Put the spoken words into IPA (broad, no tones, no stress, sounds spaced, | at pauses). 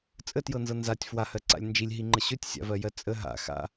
t͡sʼ ə t j ɤ n z ɤ n z a tʲ f w a h ɜ ǀ a̰ lʲ n d͡ʒ i lʲ ɦ i ŋ͡ǃ ə ɕ ɵ tʲ sʲ a̰ v ɜ j ɜ t͡sʼ ə ɦ a̰ x a̰